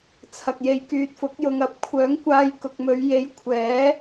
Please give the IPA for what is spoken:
t͡sʰ ɐ˨ k̚ j e˨ j k yː˨ t̚ f ʊ˨˥ k̚ j ʊ˨ ŋ ɐ˨˥ p̚ kʷʰ œː˨˥ ŋ kʷ aː˧ j k ʊ˨ k̚ m ɵ˨˧ ɥ j e˨˥ j kʷʰ ɛː˨˥

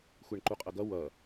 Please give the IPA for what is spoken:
xʷ e ɳ ǃ u qʼ ʌ ɡ ʌ w ʌ

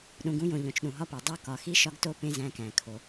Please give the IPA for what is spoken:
ɗ ũ˨ ɡ ũ˦ j õ˨ ʎ õ˨ t͡ʃ ɗ ũ˨ ɦ ɒ˦ p e˨ dˤ o˦ k ɒ˨ x i˦ ʃ ɒ˦ ɡ t o˦ p ẽ˦ z æ̃˦ k æ̃˨ kʰ o˨

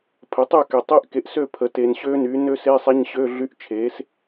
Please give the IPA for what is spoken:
pʰ ə˩˥ tˤ y˥˩ k ɛ˨ tˤ e˦˥ ʔ k e˩˥ ʔ s ø˥˩ pʰ ə˩˥ t e˨ n ɕ ø˦˥ n y˩˥ n ø˦˥ s e˧˥˧ sˤ ɛ˧˥˧ ɲ ɕ ø˧˥˧ ɮ y˧˥˧ ʔ t͡ʃʰ e˩˥ s

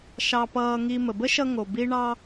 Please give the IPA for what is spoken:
ʃ ɑ˧ p ʌː˧ ŋ i˧ m ə˩ b ə˥ ʃ ʌ˧ ŋ o˩ b i˧ ɳ ɑ˧

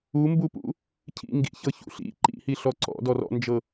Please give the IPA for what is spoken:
u m b u p ṵ | cʰ ḭ ŋ ɡ ḭ ç ɤ ç ṵ ɬ ḭ ǃ ḭ h i ɬ ɔ ǀ ɔ̰ d ɔ r ɔ̰ n d͡ʒ ɤ

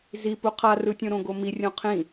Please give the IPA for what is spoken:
z i p u qʰ a r ɯ tʲ õ ɾ õ ɡ o m i rʲ õ qʰ ĩ

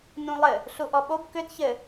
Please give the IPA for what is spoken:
n ũ lˠ ɘ | ɬ u ʔ ɔ ɓ o b k ʏ d ç ɘ

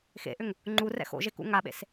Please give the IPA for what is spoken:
x ḛ ʔ ʏ ŋ | ŋ͡ǃ u r ɛ̰ x o̰ ʒ e k ṵ ŋ a ɓ ḛ s

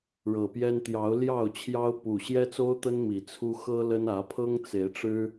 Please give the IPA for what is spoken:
ɻ ɤ˨˩ p j ɛ˦ n t̪ j ɑ˨˦ ʊ̯ l j ɑ˥˨ ʊ̯ t͡ɕʰ j ɑ˦ ʊ̯ p u˨˩ ɕ j ɛ˦ t͡s o˦ ʊ̯ t̪ ə˦ n m i˨˩ t͡sʰ u˦ x ɤ˦ l ə˦ n ä˨˦ pʰ ɤ˦ ŋ t͡s e˨˦ ɪ̯ ʈ͡ʂ ɻ̩˦

